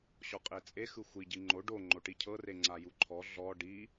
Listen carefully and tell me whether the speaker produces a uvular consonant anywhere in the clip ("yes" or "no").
yes